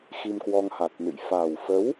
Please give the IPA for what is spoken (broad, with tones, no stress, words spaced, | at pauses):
xi˧mkwɔ˧ŋha˨˩t̚nɨ̰˧˨j fa˨˩wfə˨˦w